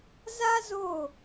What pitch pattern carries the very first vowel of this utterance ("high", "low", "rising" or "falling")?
high